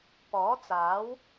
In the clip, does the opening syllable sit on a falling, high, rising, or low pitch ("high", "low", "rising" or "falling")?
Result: rising